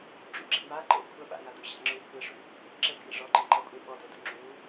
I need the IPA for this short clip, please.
ɖ͡ʐ ṵ ɡ͡ǁ ḛ m a ǃ ḛ ə̯ kʷʰ ɐ ɓ a̰ ŋ a d ṵ ɕ a̰ ŋ͡ǁ u kʷʰ ɨ ə̯ ʂ ṵ | ǁ ɘ ɡʱ ḛ ʐ ɔ ǃ ɘ ǃ ɐ kʷʼ e ɓ ɔ d o d ṵ ŋ͡ǁ u

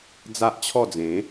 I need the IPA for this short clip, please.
d͡z a˦ ʔ t͡ɕʰ ɔ˥˧ d͡z ẽ˨˦

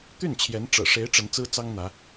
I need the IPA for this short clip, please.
t̪ y˥˩ n t͡ɕʰ j ɛ˧˥ n ʈ͡ʂ ɤ̰˨˩ ʂ e˧˥ ɪ̯ ʈ͡ʂ ə˧˥ n t͡s ɹ̩˥ t͡s ɑ˥ ŋ n̪ ä˧˥

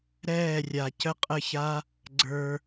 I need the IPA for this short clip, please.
ɾ ɛː˦˨ rʲ a˨ c ə˦ qʼ ə˦˨ ç a˦ | ɡ͡ǀ ə˞˧

